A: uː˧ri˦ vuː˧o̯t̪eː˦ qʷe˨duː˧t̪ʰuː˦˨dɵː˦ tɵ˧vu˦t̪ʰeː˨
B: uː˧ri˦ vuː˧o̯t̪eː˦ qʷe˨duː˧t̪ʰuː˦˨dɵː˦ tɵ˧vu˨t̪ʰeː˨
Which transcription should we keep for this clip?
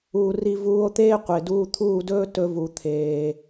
B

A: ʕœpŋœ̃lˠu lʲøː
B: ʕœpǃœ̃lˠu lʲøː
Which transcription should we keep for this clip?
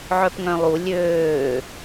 A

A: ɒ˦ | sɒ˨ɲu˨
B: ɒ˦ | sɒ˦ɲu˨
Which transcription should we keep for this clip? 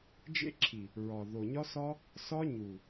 B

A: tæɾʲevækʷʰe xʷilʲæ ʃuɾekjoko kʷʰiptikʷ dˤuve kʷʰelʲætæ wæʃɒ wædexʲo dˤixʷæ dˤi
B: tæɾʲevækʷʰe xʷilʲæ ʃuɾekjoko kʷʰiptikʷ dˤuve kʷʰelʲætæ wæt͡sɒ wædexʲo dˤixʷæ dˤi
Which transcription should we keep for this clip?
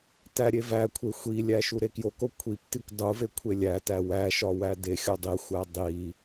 A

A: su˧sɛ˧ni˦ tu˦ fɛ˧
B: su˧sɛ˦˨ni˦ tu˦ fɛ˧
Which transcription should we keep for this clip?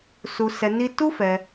A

